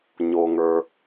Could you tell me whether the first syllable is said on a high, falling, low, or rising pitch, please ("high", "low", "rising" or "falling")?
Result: low